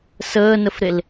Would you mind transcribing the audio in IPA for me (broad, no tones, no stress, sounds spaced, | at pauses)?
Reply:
s əː n ə f ɾ e l